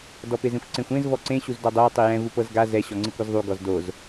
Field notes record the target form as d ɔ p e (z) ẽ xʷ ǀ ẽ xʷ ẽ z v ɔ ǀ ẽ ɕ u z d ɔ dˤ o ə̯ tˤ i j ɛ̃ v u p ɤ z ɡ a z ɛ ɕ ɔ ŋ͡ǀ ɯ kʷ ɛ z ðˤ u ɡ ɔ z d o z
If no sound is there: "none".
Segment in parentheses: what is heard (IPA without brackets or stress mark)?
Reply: z